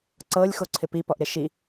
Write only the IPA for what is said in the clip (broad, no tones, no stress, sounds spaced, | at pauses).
ǀ ɤ lʲ x o ǀʰ ɪ p i p ɔ ʔ ɾ ɪ ʃ i